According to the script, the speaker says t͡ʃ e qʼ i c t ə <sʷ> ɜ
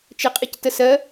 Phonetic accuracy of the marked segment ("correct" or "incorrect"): incorrect